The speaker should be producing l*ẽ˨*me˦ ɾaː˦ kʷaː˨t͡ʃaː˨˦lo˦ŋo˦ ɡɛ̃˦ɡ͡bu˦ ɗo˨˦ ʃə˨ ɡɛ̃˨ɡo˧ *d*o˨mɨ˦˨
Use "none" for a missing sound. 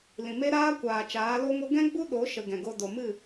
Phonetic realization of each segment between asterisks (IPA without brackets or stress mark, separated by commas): ĩ˨, d